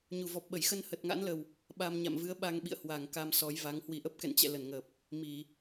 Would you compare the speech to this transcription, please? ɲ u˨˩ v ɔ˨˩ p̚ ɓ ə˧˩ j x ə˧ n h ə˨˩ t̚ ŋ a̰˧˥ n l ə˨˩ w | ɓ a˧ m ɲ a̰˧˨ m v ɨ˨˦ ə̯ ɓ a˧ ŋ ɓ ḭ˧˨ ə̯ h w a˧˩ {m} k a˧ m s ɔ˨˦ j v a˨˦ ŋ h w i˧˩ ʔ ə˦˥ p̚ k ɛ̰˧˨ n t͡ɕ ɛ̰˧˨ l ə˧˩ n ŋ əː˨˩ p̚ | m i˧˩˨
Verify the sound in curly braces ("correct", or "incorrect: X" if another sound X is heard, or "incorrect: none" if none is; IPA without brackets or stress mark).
incorrect: ŋ